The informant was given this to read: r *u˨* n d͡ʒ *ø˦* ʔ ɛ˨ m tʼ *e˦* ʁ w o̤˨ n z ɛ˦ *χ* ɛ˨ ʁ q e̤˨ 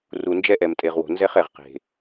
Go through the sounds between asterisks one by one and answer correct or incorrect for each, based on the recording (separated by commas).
correct, incorrect, incorrect, correct